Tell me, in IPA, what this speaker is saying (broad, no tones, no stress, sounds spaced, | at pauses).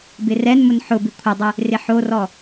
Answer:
b ɪ r ɛ n m ʊ n ħ ʊ b ɪ kʷʰ ɪ dˤ ɪ | r ɪ ħ o r ɔ